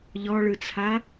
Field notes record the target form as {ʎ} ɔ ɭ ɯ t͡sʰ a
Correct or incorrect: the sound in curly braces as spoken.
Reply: correct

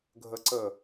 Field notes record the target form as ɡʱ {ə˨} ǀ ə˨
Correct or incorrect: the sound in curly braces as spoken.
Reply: correct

